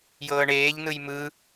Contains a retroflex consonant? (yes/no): yes